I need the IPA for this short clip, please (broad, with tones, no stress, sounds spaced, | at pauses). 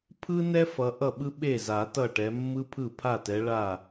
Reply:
pʰ ɯ˥ n ɛ˥ f ʌ˨˦ ʔ ʌ˥˩ ɓ ɯ˥ ɓ e˥˩ z a˨˩˦ t ʌ˥˩ ʈ ɛ˨˦ mː ɯ˥ pʰ ɯ˥˩ pʰ a˥˩ t ɛ˨˦ ɭ a˥˩